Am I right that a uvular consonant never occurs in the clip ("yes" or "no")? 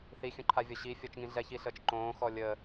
yes